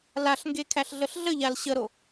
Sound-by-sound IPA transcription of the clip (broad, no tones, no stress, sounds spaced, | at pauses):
l a ɬ ŋ ɡ e kʰ æ ɬ ɮ ə ɬ ɮ ə ʎ a l ɕ ə ɾ o